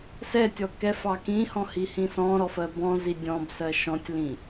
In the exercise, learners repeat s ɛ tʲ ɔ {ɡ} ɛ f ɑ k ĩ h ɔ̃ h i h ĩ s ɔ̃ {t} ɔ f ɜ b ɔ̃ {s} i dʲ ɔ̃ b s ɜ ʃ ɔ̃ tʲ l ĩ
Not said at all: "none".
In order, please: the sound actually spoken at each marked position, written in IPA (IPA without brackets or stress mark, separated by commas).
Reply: k, ɾ, z